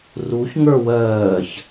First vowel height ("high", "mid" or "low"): high